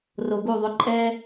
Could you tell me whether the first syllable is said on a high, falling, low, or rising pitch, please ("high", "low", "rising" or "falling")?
low